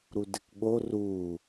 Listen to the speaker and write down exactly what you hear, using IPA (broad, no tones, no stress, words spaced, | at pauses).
ɾudɪkɠo ru